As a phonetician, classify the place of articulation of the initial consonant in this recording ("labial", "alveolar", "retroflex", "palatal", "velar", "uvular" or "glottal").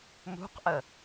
labial